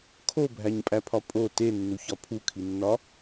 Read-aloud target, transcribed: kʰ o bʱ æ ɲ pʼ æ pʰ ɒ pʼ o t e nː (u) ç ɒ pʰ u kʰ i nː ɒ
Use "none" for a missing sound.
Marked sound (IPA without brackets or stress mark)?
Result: u